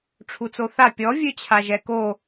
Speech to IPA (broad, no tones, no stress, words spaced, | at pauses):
ʈ͡ʂʰut͡soθa pʲɔ vʲøt͡ɕʰaʒɛko